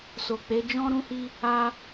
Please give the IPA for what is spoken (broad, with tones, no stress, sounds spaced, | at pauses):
s o˨ k͡p e˨˦ d͡ʒ ɔ̃˦ ɾ ũ˦ h i˦ | a˧